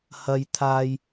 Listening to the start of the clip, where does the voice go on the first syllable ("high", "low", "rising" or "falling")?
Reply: high